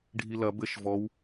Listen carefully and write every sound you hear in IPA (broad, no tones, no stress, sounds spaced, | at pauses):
ɖʱ i l ɐ b ɘ ʃ v ɔ w